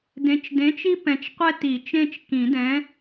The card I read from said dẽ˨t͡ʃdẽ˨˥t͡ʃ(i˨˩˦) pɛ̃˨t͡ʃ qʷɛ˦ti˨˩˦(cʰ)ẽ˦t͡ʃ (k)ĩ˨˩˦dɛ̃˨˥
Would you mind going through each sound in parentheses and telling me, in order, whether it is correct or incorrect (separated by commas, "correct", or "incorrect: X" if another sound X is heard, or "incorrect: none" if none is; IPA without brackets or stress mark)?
incorrect: i˦, incorrect: t͡ʃ, correct